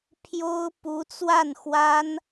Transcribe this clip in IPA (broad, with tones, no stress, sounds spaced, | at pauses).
pʰ j o˥ ʊ̯ p u˧˥ t͡s w a˥˩ n x w a˥ n